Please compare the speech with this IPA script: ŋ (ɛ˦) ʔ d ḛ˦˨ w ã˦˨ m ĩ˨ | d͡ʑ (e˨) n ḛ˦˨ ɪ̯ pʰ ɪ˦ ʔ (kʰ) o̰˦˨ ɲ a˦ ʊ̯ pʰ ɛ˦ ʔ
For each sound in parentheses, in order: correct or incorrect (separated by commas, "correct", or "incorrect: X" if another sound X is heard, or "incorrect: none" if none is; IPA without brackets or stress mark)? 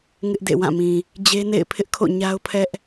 incorrect: ɪ˦, incorrect: e˦, correct